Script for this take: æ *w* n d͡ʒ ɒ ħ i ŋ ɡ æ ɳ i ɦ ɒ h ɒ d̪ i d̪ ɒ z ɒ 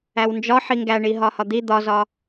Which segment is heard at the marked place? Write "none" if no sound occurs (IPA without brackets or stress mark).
w